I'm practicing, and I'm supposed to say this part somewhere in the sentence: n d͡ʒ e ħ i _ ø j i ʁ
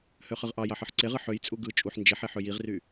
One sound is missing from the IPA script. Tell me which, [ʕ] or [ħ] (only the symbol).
ħ